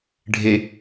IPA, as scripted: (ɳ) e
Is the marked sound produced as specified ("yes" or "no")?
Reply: no